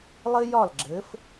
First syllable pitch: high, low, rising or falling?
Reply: high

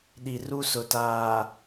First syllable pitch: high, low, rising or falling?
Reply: low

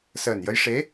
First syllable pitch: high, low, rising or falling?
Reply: low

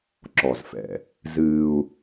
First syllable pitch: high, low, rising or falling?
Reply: low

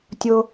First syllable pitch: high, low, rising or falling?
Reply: high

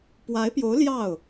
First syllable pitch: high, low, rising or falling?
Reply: rising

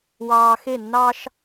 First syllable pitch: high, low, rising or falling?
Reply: low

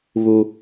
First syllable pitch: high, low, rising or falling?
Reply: high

